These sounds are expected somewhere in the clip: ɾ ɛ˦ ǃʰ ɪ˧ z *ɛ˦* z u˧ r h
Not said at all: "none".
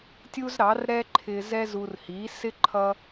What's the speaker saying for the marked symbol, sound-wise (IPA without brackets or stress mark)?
ɛ˦